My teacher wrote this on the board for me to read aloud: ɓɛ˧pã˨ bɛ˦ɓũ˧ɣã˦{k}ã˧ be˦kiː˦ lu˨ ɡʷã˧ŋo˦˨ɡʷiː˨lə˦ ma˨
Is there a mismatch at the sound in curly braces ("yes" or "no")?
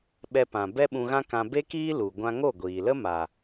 no